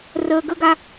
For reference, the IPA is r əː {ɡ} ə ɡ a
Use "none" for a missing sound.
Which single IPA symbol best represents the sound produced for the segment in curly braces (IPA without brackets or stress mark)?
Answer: ɡ